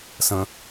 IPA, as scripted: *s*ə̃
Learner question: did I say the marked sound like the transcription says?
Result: yes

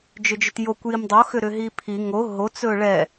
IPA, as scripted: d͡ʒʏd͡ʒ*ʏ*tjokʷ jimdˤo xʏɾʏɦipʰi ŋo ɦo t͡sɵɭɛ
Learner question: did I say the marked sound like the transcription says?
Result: yes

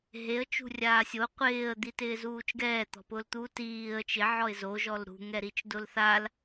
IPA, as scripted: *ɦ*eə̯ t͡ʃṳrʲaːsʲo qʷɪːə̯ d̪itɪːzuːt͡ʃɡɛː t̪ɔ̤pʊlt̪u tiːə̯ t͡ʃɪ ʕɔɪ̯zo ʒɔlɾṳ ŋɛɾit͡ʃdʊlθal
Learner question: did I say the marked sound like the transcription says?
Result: yes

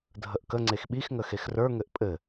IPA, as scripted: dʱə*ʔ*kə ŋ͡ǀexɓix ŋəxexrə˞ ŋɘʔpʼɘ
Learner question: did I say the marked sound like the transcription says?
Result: yes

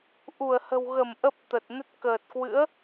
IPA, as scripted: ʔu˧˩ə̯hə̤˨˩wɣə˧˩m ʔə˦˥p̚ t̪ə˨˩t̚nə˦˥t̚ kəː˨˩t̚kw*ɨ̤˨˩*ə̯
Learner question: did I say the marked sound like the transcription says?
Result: no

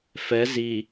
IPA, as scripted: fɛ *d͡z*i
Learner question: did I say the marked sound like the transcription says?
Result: no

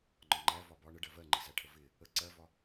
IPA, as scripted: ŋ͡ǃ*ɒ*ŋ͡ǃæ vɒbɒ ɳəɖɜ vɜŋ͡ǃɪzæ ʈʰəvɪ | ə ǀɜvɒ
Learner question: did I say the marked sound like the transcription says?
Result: yes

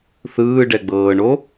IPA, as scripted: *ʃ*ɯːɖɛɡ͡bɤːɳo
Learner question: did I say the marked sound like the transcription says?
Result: no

